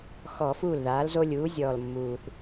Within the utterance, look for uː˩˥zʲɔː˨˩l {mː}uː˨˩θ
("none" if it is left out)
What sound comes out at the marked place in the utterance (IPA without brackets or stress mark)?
mː